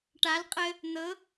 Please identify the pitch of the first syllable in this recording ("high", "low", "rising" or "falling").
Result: rising